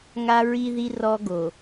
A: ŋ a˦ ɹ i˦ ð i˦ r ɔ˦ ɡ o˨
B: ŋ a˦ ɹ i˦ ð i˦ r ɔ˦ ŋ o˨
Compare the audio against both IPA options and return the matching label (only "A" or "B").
A